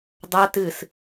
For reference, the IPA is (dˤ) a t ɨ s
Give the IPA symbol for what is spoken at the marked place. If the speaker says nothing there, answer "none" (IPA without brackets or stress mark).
dˤ